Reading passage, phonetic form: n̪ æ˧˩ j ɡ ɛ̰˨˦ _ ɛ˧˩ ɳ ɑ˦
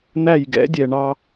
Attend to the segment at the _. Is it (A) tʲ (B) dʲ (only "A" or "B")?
B